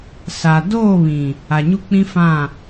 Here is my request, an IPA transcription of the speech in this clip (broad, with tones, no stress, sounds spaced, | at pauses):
s a˨ d oː˦˨ β ĩ˨ | a˨ ɲ u˦ k͡p ĩ˦ f ã˦˨